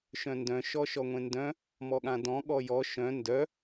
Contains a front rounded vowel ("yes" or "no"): yes